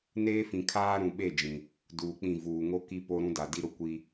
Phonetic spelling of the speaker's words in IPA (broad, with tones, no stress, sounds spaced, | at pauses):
n eː˦ f ĩ˨ kʰ aː˦ ɾ ũ˨ ɓ e˦˨ d͡ʒ ĩ˨ | d uː˨ k͡p ĩ˦˨ v uː˨ ŋ o˦ k i˦ p o˦ ɾ ũ˦ d a˨ d i˦ ɾ ʊ˦ kʷ i˦